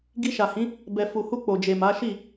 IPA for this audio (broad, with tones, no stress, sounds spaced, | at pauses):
ɡ i˧ ʃ a˨ h ĩ˨˦ | b ɛ˨ f u˨ h u˧ k͡p o˨ d͡ʒ e˨ m a˨˦ ʃ i˦˨